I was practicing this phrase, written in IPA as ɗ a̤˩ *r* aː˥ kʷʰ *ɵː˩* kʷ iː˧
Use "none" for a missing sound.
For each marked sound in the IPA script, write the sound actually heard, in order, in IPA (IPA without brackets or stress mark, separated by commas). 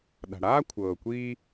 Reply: ɽ, ɤː˩